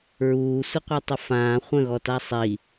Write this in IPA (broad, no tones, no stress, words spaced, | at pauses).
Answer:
ɹuːsʷəqʷɛtˤə fãː χʷə̃ɣɔta sˤi